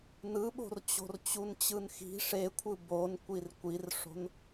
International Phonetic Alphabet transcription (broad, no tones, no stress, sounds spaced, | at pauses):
n ɯ ɓ o̤ r t͡ɕ o̤ r t͡ɕ u n t͡ɕ ɯ n x i̤ ʂ e kʷʰ ɯ b o n kʷ i r kʷ i r ʂ o̤ n